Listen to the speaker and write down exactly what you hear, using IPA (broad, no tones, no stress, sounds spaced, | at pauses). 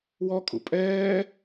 w ɔ kʼ ṵ pʼ ɛː